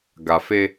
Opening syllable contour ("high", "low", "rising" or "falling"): low